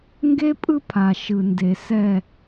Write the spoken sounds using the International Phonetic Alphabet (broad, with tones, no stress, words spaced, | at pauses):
ŋɡe˦pʼɯ˦pʰa˨ ʃɯ˨ nde˨ sɛ˦˨